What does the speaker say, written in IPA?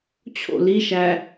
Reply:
t͡ɕʰ o̰ l i ʃ æ

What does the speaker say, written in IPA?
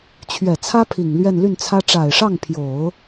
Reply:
t͡ɕʰ ɥ ɛ˨˩ t͡sʰ ä˥ pʰ i˨˩ ŋ l ɥ ɛ˥˧ n l y˥˩ n t͡sʰ ä˥ ʈ͡ʂ a˨˩ ɪ̯ ʂ ɑ˥˩ ŋ pʰ j o˨˩˦ ʊ̯

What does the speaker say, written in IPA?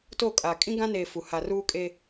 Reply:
t o˦˨ kʼ a˨ kʼ ĩ˦ ɡ ã˦ n eː˨ f u˨ h a˨ r uː˦ kʼ e˦

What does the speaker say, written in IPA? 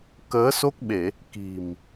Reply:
k əː˨˦ s o˦˥ k̚ ɓ e˧˩˨ | k i̤˨˩ m

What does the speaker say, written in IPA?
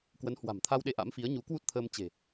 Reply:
k w ə˨˦ n h w a̤˨˩ m t̪ʰ a˧ w ɗ e˧ ʔ a̰˧˥ m f i˨˦ ə̯ ɲ u˨˦ k w u˦˥ t̚ t̪ʰ əː˧ m t͡ɕ e̤˨˩

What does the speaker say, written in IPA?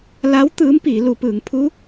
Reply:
l a˧˥ w t̪ ɯː˧˥ m p iː˩˧ l u˩˧ p ɯː˩˧ ŋ pʰ u˧˥

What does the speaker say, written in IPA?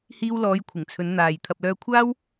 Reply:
h iː˧ w l ɔː˨˧ j kʷʰ ɪ˨˩ ŋ t͡sʰ ɵ˨˧ n n̪ aː˨ j t̪ʰ ɐ˨ p̚ l œː˧ kʷʰ aː˥ w

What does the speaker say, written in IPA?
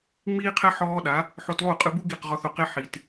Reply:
ŋ͡m iː˥ qʰ ɛ˥ ħ ɔː˥ ɗ a˩˥ | ħ o˧ t lˠ u˥˩ qʼ ɯ˧ b u˥ ɡ i˥˩ q ʁ ɔ˧ θ o˩ q e˥ ħ i˩ t

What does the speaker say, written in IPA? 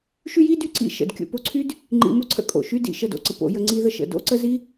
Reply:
ʃ y˦ j i˦ d y˦ ǀ ḭ˧ ʃ ə̰˨ d kʲ o̰˧ p o˧ ǀʰ y˦ d | ŋ͡ǃ ḭ˧ m o˦ ǀʰ ə̰˧ kʼ o̰˨ ʃ y˦ d ḭ˨ ʃ ə˦˨ d o̰˧ ǀ ə˨ p o̰˧ j ə˧ ŋ͡ǀ i˧ ð ə˧ ʃ ə̰˨ d o̰˦ ǀ ə˦ z i˦

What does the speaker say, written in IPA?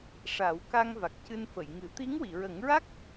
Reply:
ʂ a˨˩˦ w k a˧ ŋ v a˨˩ k̚ c ɨ˧ n f ə˨˩˨ j ŋ ɨ˨˩˦ t̪ i˧˥ ŋ w i˨˩˨ ɹ ə˨˩˦ ŋ ɹ a˦˥ k̚

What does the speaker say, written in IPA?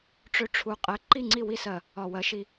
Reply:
ʈ͡ʂ ø˦ ʈ͡ʂʰ u˧ qʼ ɛ˧ ǃ i˦˨ ŋ͡ǀ i˦˨ w i˦˨ s ɜ˨ | ɒ˨ w ɜ˨˦ ʃ i˧

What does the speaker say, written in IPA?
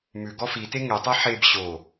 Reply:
m ʉ ɡ ɔ f i t e ŋ e tˤ e ħ e b ɕ o

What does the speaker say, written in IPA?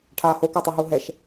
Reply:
ʈʰ aː h o k œ tˤ u ɦ u ɦ ɛ ʃ

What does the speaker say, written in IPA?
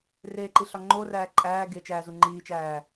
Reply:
r e ǃ i ɬ ɒ ŋ͡ǃ o r æː ǃʼ æː ɡ e t͡ʃ æː z u ŋ͡ǃ iː t͡ʃ æː

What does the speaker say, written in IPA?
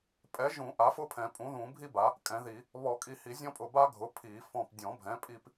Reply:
pʼ ɛ˩˥ ʒ ũ˨˩˦ ʔ a˩˥ f ʊ˥ pʰ ɛ̃˨˩˦ pʼ ũ˩˥ ð ũ˨˩˦ bʱ i˥ b a˩˥ | kʼ ɛ̃˩˥ ð i˨˩˦ | β ɔ˨˩˦ kʼ i˧˩ h i˨˩˦ zʲ ɔ̃˥ pʼ ʊ˧˩ b a˥ ɡʱ ʊ˩˥ pʰ i˨˩˦ f ɔ̃˧˩ p dʲ ɔ̃˨˩˦ bʱ ɛ̃˩˥ pʼ i˥ p

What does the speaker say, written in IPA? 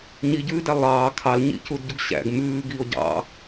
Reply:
ɲ i ɟ ʉː d æ lˠ ɑː kʰ ɑ l ɲ ḭ c u d ɟ u ɡ ɕ æ̰ ɡ m ʉː ɡ i o̯ ɟ ɑ̰

